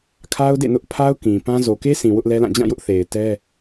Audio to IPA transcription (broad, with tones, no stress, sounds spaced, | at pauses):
kʰ a˦ ʊ̯ d ḛ˦˨ n ʊ˦ ʔ pʰ a˦ ʊ̯ k ĩ˨ p ã˦ z o˨ k e˦ sʰ ĩ˨ w ʊ˦ ʔ l ɛ˦ l ã˦˨ d͡ʑ ã˦˨ j ʊ˦ ʔ θ e˨ ɪ̯ t ɛ˦